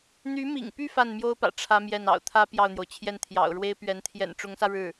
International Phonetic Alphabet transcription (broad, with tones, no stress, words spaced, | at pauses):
n̪y˧˥mḭ˨˩ŋpy˥˧ fa˥˩n mjo˥ʊ̯pä̰˨˩ ʈ͡ʂʰä˥mjɛ˥˩n ɑ̰˨˩ʊ̯t̪ʰä˥ pjɑ˥˩ʊ̯n̪jo˩ʊ̯t͡ɕʰjɛ˥˩n t̪ʰjɑ̰˨˩ʊ̯ɻwe˥ɪ̯pɥɛ˧˥n t̪ʰjɛ̰˨˩nʈ͡ʂʊ˧˥ŋsä˧ ɻɻ̩˥˩